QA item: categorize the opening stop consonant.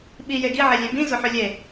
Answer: implosive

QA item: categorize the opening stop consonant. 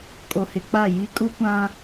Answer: ejective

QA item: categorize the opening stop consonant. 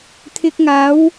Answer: aspirated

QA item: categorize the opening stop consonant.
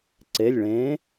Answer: click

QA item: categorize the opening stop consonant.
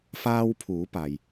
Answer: aspirated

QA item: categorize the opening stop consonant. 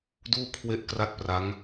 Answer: plain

